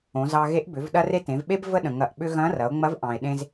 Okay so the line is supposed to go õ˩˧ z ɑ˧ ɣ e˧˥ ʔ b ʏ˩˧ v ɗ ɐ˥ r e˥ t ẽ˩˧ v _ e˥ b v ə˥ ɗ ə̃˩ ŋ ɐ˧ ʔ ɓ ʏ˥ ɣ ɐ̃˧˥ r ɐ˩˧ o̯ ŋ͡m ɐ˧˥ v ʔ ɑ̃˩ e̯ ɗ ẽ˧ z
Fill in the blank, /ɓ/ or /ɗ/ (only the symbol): ɓ